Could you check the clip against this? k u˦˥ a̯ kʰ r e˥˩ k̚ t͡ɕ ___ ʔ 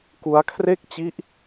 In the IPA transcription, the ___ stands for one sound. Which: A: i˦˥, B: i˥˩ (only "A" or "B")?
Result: A